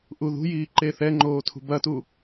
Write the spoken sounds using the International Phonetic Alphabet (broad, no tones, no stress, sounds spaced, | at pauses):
ʔ u ð ṳ j iː ǃ e θ ɛ ŋ͡ǃ oː tʰ ṳ b ɐ t u